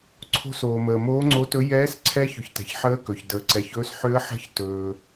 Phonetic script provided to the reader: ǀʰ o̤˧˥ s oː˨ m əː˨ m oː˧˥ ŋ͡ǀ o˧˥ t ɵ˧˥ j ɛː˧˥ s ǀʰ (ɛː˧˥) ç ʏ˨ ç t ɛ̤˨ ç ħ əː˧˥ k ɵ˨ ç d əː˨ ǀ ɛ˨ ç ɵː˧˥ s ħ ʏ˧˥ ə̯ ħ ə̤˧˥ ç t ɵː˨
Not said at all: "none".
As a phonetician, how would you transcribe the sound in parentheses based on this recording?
ɛː˧˥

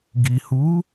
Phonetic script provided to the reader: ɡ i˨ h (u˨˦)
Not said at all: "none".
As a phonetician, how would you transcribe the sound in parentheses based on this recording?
u˨˦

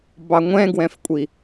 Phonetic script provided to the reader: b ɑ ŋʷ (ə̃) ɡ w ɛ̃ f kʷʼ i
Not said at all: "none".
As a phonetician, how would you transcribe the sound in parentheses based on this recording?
ɛ̃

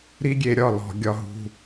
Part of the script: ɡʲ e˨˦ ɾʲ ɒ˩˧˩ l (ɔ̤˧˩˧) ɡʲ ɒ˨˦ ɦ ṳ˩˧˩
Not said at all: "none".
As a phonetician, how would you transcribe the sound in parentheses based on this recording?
ɔ̤˧˩˧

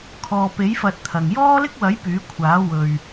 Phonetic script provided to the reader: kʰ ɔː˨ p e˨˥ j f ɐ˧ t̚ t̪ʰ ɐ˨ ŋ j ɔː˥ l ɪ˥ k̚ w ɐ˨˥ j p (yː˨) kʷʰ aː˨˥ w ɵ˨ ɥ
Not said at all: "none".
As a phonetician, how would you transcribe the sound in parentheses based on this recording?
yː˨˥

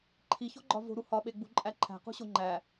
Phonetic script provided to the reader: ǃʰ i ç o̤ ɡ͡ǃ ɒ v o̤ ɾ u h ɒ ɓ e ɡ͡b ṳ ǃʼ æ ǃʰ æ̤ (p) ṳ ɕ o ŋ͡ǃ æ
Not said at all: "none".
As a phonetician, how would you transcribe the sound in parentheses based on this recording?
q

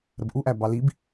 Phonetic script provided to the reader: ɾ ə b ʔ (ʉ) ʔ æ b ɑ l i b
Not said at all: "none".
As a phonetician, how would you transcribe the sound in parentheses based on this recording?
u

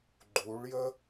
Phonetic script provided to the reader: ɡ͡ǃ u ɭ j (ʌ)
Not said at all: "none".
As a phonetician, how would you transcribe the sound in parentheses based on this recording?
ə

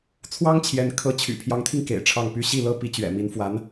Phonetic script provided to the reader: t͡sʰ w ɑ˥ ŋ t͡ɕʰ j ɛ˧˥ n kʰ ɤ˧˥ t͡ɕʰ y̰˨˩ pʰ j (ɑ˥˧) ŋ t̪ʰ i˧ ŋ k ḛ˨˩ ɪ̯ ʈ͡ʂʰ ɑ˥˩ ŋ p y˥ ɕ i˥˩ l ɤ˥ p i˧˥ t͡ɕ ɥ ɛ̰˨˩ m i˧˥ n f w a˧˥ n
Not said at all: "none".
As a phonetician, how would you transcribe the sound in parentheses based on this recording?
ɑ˧˥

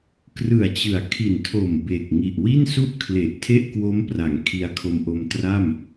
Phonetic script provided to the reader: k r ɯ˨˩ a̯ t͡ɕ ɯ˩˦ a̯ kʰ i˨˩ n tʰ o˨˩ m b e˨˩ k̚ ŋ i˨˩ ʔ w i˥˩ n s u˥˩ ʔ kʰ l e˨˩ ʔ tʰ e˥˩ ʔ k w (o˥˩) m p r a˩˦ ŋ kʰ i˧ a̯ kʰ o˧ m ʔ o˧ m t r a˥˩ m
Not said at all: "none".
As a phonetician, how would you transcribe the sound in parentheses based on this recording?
o˦˥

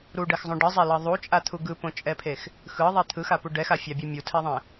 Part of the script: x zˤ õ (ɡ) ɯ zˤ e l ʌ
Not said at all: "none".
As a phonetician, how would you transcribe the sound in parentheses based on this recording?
ɖ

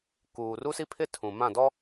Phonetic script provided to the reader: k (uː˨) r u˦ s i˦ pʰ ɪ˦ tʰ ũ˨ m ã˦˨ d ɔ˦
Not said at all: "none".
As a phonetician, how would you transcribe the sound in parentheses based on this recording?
uː˨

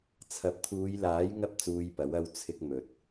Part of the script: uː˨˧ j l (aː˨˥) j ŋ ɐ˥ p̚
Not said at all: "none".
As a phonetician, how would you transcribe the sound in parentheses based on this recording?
aː˨˥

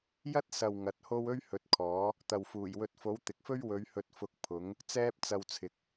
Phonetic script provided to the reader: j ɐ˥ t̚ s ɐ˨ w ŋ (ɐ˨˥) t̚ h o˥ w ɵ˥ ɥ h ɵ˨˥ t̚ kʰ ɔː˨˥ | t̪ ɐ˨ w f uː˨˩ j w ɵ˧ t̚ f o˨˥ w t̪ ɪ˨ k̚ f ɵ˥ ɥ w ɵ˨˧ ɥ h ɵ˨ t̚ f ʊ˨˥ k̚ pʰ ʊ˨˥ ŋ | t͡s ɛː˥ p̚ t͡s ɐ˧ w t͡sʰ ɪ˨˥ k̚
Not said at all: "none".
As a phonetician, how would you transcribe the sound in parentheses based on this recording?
ɐ˨˥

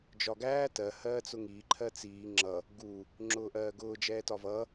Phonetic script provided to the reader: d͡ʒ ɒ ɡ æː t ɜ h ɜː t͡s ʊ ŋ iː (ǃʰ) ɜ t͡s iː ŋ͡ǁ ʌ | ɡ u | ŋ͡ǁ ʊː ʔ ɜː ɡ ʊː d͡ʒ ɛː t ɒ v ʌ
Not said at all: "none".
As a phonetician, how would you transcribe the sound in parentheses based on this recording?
ǃʰ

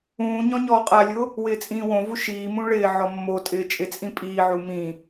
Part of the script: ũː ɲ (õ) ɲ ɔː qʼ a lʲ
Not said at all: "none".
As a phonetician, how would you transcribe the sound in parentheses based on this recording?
ɔ̃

